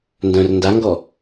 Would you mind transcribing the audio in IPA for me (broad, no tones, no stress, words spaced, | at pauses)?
ndœ̃r ndaŋɡɔ